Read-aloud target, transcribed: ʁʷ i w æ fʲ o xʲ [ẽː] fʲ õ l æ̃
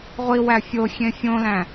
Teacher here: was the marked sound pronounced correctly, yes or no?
no